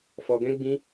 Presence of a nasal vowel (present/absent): present